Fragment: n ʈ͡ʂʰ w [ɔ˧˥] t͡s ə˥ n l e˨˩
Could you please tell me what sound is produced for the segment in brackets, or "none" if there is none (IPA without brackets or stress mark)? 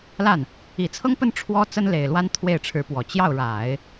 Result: ɔ˥